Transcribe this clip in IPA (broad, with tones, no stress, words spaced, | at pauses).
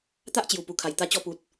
t̪a˦ʔt͡ɕju˨˩ pu˨˩kʰa˨˩j t̪a˧ t͡ɕɔ˧pu˨t̚